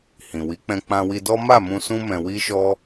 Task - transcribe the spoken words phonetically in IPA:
h ĩ˨ w i˨˦ k͡p ɛ̃˧ k͡p ã˧ w i˧ d ɔ˦ m a˦˨ m ũ˧ s ũ˦ m ɛ̃˧ w i˦ ʃ ɔ˦

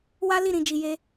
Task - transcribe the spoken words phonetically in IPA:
w a˦ l i˦˨ ɾ ĩ˨ d͡ʒ i˨ j e˧

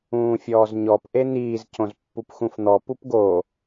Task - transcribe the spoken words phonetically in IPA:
ũː fʲ ɔː z ɲ ɔ p ʔ e n̪ iː z c õ z pː u p x ũ f n̪ ɔ p u p ɡ o

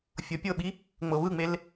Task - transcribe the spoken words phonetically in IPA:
fʲ ɤ pʲ ɤ ɓ i | ŋ͡m ɤ β ɯ ŋ͡m e l

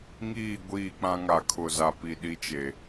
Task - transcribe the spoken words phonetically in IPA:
ŋ iː˦˨ ɡʷ iː˦˨ k͡p ã˦ ŋ a˨ kʰ ʊ˨ z a˨ p i˨ ɗ i˦ t͡ʃ e˨

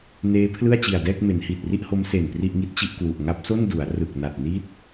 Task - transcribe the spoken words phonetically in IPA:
n eː˦˥ pʰ l ɯ˥˩ a̯ t͡ɕ i˨˩ a̯ d ɛː˥˩ k̚ m e˩˦ n h iː˨˩ t̚ r i˥˩ ʔ h o˦˥ m s e˨˩ n p r i˥˩ ʔ ŋ i˥˩ t̚ t͡ɕ i˥˩ ʔ k w u˨˩ ʔ ŋ a˦˥ p̚ s o˥˩ n d u˩˦ a̯ r ɯ˨˩ k̚ n a˨˩ t̚ n i˦˥ t̚

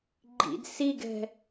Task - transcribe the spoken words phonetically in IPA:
ɡ͡ǃ ḭ d s i ɡ ɛ̤

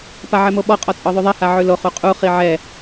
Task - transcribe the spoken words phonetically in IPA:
p a ʕ ɛ m o ɓ ɔ qʼ ɔ t͡sʼ ɔ ðˤ ʉ ðˤ ɛ h a ʕ ʉ l o χ u qʼ u χ i ʕ ɛ

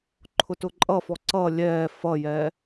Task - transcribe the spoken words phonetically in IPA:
ǃʰ ʊ t ʊ ǃʼ ʌ f ɔ ǀ ʌ lʲ ɛː f ʌ j ɛ

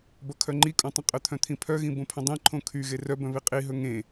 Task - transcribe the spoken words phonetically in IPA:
b ʌ kʰ œ ŋ͡ǃ i kʼ õ tˤ ə̃ qʼ ə t̪ʰ œ̃ t̪ʰ ĩ pʰ œ ɣ ĩ b õ pʰ ə̃ dˤ ĩ ǃʰ õ kʰ y ɣ e r œ b œ̃ β i qʼ i ɦ ɵ ŋ ẽ

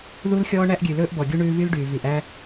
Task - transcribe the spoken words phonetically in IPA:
ð u˦ l xʲ ɔː˦ ɳ æ˦ ʔ ɡʲ ʉ˨ l ɵː˦ ʔ b ɔ˨ ɡʲ u˦ ɳ ʉː˦ v y˦ l ɖ yː˨ v i˨ ʔ æ˦

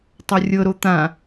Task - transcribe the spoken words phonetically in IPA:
tˤ ɤ rʲ ɤ ɾ o t̪ ã

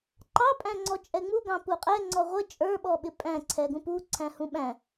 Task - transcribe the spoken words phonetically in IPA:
ǃ ɑ pʼ æ̃ ŋ͡ǀ ɔ t͡ʃʼ ɛ ŋ͡m u ɡ ɑ̃ p u qʼ ɛ ŋ͡ǀ ɔ ʁʷ ə t͡ʃʼ ə˞ ɓ ɔ ɓ ɪ pʼ æ̃ ǀʰ ɛ ɡ ũ p u ǀʰ æ̃ h ũ ɓ æ̃

